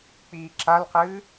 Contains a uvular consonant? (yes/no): yes